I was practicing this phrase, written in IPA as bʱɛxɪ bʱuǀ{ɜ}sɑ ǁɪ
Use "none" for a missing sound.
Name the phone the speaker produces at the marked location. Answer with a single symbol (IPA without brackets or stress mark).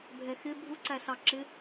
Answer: æ